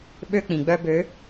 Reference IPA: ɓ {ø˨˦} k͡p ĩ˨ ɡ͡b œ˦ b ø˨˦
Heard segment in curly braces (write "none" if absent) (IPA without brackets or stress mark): ø˦